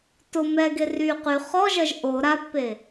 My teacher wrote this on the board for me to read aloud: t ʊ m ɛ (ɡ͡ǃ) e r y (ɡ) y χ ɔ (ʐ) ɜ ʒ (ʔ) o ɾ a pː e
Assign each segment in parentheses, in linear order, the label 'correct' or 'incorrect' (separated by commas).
incorrect, incorrect, incorrect, correct